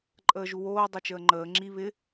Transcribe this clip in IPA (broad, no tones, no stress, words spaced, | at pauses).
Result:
ǃʼəːʒuwoː dˤot͡ʃəːŋ͡ǃəː ŋ͡ǁi βɪ